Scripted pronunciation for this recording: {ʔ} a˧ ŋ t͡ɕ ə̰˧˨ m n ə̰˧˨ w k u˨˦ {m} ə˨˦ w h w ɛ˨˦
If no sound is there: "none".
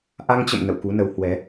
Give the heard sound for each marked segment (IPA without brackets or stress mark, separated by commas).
ʔ, n